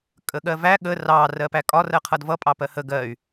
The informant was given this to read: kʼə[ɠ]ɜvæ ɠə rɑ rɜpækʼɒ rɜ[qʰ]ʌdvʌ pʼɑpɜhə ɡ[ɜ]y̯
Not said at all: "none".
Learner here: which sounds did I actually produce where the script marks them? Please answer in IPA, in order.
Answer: ɠ, qʰ, ɜ

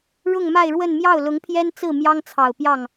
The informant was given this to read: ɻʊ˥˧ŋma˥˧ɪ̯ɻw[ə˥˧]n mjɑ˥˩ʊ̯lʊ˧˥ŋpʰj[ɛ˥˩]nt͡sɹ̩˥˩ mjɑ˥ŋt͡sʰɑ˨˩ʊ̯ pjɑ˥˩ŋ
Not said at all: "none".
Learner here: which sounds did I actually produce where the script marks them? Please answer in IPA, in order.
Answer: ə˥˧, ɛ˥

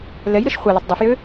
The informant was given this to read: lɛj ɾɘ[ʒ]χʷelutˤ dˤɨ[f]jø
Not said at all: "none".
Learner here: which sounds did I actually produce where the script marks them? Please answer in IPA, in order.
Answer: ʃ, f

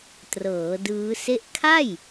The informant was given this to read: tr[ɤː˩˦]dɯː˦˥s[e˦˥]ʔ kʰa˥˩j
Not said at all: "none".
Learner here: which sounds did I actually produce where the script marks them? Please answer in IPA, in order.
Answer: ɤː˩˦, e˥˩

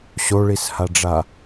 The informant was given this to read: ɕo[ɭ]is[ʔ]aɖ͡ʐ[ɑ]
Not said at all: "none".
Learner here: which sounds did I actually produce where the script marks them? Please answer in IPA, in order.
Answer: ɭ, h, a

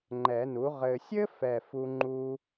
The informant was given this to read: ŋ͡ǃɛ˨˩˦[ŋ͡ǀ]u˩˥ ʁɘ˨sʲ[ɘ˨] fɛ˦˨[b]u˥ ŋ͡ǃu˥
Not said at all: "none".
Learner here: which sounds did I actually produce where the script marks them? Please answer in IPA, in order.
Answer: n, ɘ˥, f

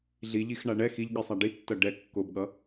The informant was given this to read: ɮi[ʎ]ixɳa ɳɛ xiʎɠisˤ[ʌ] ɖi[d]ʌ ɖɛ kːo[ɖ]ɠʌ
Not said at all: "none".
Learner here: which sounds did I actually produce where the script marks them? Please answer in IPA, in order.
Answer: ʎ, a, tː, b

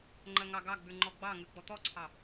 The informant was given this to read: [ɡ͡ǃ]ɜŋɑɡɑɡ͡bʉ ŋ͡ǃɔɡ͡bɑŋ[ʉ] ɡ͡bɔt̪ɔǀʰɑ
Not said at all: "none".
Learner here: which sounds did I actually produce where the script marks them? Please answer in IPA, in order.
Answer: ŋ͡ǃ, ʉ

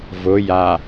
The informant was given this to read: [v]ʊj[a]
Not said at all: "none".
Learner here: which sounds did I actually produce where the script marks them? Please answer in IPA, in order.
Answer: v, a

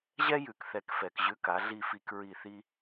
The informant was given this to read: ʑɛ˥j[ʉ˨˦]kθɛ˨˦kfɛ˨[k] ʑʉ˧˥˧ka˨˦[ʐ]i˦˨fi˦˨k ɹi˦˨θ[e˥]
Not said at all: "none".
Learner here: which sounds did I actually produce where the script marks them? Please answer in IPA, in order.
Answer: ʉ˨˦, k, ɮ, i˥

